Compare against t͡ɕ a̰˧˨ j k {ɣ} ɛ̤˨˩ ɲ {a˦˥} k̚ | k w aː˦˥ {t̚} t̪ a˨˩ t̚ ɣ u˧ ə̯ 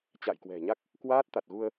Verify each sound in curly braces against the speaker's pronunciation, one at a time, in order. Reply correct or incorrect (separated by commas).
incorrect, correct, correct